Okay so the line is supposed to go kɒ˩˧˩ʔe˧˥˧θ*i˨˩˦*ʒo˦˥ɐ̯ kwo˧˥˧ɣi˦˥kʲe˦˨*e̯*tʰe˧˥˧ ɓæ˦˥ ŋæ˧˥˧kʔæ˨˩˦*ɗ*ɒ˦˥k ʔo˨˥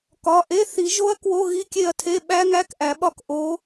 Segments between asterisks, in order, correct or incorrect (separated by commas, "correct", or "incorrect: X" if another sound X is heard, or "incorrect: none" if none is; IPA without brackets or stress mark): correct, incorrect: ɐ̯, incorrect: ɓ